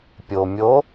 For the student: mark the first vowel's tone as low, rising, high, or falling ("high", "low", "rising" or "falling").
low